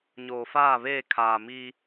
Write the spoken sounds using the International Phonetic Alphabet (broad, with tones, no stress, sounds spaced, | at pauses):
ɲ oː˨ f aː˦˨ β eː˦˨ kʰ aː˨ m i˦